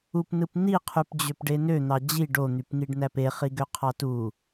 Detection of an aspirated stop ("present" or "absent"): present